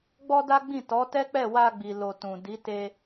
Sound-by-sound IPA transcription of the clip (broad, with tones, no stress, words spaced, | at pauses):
ɡ͡bɔ˦da˦ɡ͡bĩ˦˨ tɔ˨˦tɛ˦k͡pɛ˦˨ wa˧ɡ͡bi˨ lo˧tũ˨ di˨˦te˧